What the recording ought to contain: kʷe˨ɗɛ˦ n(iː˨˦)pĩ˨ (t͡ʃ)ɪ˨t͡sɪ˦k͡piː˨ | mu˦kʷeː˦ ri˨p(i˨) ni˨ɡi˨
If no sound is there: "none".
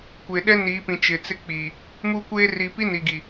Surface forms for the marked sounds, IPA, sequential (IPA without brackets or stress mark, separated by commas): iː˨˦, t͡ʃ, i˦